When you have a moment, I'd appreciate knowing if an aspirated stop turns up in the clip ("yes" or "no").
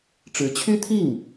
yes